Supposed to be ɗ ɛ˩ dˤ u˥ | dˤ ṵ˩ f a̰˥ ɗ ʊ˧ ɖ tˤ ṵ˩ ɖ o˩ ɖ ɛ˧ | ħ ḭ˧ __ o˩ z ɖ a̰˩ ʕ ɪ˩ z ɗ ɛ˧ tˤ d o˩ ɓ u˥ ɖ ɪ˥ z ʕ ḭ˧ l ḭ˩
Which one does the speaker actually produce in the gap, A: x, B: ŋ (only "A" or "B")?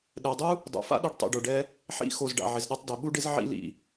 A